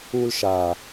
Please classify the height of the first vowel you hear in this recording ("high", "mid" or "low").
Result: high